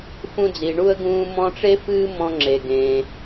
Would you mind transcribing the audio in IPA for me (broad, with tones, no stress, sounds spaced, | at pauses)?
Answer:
f ũ˧ d͡z i˩ ɳ u˧ ə̯ ɡ ũː˧ m ɔ̃˧ ʈ͡ʂ e˥ f ɨː˥ m ɔ̃˧ ŋ͡ǁ e˩ ɡ ẽ˩